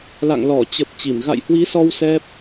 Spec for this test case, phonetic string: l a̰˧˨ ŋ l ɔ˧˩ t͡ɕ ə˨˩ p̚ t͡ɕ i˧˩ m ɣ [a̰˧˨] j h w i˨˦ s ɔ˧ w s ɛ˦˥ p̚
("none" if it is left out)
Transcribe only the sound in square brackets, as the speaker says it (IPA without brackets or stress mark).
a̰˧˨